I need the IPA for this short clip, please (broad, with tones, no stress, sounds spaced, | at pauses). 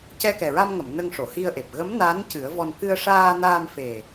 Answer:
c ɛ˧ k ɛ˨˩ ɹ a˧ m ŋ ə˨˩˨ m n ə˧ ŋ ʂ o˨˩˨ h i˧ ə̯ ʔ e˨˩ p̚ ɣ ə˧˥ m n a˧˥ n c ɨ˨˩˦ ə̯ v ɔ˧ n k ɨ˧ ə̯ ʂ aː˧ n aː˧ m f e˨˩